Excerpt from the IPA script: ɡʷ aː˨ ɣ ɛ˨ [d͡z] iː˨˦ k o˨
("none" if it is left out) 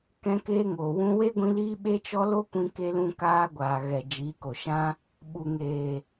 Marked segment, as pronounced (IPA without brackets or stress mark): d͡ʒ